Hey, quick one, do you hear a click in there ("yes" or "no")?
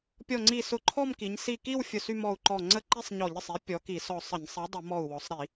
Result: yes